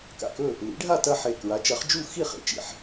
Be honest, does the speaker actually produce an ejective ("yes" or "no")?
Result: no